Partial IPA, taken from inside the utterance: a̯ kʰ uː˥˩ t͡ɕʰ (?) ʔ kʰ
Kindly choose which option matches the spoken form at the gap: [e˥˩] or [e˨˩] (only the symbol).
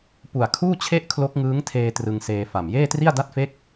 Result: e˥˩